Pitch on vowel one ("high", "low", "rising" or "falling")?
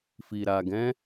low